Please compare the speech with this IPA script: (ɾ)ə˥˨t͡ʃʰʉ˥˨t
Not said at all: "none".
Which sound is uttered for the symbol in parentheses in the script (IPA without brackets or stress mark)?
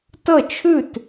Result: t